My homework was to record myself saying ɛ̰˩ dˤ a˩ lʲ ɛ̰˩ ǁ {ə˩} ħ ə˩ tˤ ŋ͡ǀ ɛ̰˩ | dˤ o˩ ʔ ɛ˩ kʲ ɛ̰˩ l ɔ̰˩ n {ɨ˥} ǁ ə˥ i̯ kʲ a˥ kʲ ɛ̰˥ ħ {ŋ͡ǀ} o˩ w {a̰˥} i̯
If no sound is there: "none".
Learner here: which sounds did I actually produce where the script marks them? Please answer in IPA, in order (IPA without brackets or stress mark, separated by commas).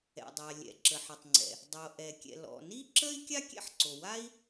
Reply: ə˩, i˥, ǀ, a˥